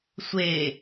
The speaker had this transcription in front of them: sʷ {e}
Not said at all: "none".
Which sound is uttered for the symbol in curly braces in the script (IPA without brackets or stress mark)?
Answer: e